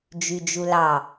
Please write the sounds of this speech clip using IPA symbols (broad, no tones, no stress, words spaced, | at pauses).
d͡ʒyd͡ʒulɑ